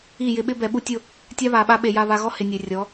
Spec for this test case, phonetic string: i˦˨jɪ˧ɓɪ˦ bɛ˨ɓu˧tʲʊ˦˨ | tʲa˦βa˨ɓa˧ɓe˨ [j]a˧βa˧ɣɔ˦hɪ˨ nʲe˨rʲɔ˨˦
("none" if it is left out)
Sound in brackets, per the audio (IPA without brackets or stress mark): j